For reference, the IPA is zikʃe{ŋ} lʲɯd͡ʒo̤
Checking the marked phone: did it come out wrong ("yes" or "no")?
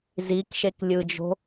yes